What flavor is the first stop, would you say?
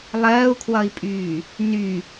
aspirated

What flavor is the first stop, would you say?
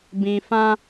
plain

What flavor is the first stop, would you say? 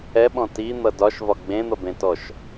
implosive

